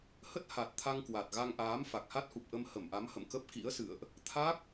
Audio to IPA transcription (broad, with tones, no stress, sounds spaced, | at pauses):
h ə˦˥ t̚ h a˨˩ t̚ t̪ʰ a˧ ŋ k w a˨˩ t̚ ɣ a˧ ŋ ʔ aː˨˦ m f a˨˩ k̚ h a˦˥ t̚ h u˨˩ p̚ ʔ ə˧ m h ə˧˩ m ʔ a˨˦ m h ə̰˧˨ m k ə˦˥ p̚ k ḭ˧˥ ə̯ s ɨ̰˧˨ ə̯ ʔ | t̪ʰ a˦˥ k̚